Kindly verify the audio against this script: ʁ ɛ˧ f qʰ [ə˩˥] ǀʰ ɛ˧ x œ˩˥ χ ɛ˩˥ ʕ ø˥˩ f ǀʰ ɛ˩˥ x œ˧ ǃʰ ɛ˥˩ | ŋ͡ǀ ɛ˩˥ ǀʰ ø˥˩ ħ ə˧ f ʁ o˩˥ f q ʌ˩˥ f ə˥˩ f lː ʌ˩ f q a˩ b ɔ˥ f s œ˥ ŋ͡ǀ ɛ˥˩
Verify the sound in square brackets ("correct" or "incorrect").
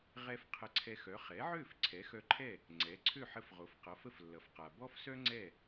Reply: incorrect